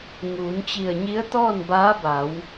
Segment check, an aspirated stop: absent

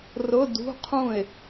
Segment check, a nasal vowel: present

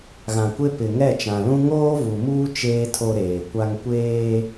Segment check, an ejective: absent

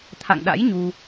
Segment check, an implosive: present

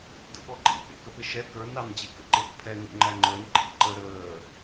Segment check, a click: present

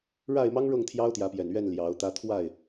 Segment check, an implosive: absent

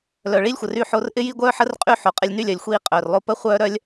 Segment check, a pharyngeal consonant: present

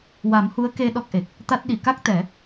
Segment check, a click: absent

